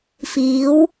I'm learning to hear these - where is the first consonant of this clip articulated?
lips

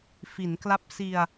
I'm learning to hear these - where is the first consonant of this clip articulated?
lips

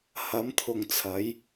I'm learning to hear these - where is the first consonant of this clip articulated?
throat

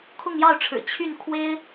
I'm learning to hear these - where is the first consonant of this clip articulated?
velum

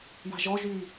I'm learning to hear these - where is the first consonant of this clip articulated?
palate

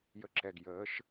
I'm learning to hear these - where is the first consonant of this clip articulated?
palate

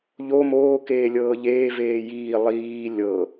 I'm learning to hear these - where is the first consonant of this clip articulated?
palate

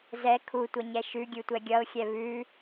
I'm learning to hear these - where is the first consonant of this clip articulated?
tongue tip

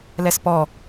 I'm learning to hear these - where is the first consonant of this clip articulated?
tongue tip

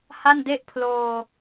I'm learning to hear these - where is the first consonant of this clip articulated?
throat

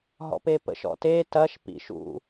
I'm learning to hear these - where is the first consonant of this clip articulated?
throat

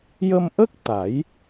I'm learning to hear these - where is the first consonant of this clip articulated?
palate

